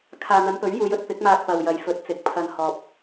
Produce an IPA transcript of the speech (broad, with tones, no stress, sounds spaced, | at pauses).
kʰ aː˨ n̪ ɐ˨˧ n p ɵ˨˥ ɥ j uː˨˧ j ɵ˥ t̚ p ɪ˨˥ k̚ m aː˧ k̚ p ɐ˨ w j ɐ˨˧ j f ɵ˨˥ t̚ t͡s ɪ˨˥ k̚ pʰ ɐ˧ n h ɔː˨ p̚